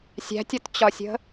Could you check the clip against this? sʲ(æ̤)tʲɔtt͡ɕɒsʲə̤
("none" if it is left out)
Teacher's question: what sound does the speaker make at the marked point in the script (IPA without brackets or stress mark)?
æ̤